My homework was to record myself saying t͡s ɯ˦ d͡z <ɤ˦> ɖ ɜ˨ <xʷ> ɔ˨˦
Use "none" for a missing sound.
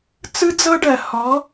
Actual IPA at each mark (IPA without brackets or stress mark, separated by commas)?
ɤ˦, h